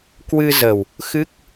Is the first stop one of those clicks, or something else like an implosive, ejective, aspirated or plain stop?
plain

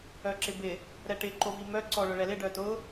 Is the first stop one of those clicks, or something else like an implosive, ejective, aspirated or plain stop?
click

